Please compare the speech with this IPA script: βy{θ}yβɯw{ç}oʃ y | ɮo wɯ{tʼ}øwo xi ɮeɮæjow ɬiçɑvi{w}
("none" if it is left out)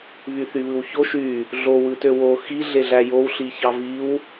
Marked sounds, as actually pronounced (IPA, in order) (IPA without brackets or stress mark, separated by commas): θ, ç, t, w